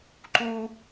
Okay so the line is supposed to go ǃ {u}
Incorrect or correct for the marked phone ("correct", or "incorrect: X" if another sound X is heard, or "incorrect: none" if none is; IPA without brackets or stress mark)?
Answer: correct